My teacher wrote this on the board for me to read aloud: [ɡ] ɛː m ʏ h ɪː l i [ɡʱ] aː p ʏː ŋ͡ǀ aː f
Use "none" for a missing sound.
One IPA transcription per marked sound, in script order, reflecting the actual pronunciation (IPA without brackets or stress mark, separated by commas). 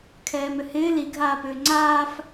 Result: kʰ, ɡʱ